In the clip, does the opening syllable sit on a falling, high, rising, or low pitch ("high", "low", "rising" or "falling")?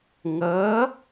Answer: rising